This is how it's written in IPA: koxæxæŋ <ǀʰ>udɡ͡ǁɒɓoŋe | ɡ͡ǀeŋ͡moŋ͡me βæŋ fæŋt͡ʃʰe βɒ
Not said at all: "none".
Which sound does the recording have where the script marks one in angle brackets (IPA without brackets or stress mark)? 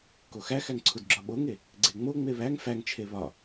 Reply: ǀʰ